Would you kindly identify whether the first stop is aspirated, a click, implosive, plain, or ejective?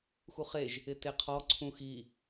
plain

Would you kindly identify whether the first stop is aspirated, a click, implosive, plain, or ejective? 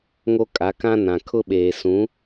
ejective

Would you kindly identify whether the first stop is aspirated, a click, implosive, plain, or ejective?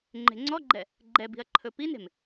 click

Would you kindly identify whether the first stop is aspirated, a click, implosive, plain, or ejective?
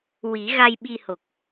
implosive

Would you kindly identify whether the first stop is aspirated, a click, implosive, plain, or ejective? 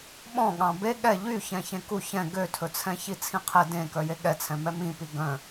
implosive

